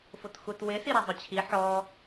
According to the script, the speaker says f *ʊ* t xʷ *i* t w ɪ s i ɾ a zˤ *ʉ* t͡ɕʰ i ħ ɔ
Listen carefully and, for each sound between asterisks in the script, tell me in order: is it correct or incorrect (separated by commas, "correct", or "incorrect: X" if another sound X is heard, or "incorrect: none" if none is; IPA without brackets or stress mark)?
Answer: correct, incorrect: e, incorrect: ʊ